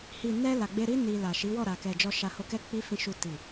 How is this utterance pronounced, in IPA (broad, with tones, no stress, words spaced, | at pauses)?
hi˨nɛ˧ la˨ɡ͡be˧ɾi˦ ni˧la˨ʃi˨˦ wɔ˦˨ɾa˨kɛ˨ d͡ʒɔ˧ʃa˧ho˧kɛ˦ k͡pi˧fĩ˨ʃu˨ ti˨